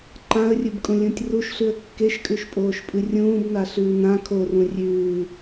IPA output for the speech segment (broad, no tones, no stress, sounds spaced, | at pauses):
ǃ ã ə̯ rʲ ɨ b kʼ ũ lʲ ũ tʲ r u ʃ ɬ ʉ ə̯ kː e ʃ kʼ ʉ ʃ pʼ oː ʃ pʼ ɨ rʲ ũː b n a ɬ ʉː n ã kʰ o r ũ rʲ ʉː